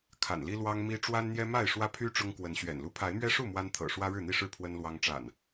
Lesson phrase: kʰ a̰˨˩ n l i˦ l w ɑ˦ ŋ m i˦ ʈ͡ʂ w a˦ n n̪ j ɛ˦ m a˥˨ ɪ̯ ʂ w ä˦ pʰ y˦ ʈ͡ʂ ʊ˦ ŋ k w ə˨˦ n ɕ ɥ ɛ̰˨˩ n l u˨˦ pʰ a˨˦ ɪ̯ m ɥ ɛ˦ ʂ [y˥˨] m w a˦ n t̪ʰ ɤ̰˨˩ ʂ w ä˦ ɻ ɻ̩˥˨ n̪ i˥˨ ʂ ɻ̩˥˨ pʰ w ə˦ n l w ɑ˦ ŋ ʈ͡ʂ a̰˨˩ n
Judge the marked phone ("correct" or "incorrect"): incorrect